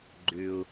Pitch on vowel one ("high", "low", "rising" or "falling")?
low